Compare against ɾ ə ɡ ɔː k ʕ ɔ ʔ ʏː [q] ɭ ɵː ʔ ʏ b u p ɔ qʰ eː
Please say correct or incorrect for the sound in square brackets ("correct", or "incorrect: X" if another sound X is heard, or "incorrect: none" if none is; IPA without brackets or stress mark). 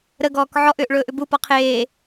incorrect: ʔ